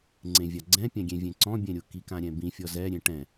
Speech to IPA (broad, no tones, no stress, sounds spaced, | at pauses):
ŋ͡ǀ ẽ vʲ a ɡ͡ǀ ɛ̃ pʲ ã ɡʲ ẽ vʲ ẽ ǀ ɔ̃ bʲ ɛ̃ ɾʲ ʊ k i k ã ɾʲ ɛ̃ b ĩ fʲ ɔ z ɛ ɾʲ ẽ ʈ ɛ̃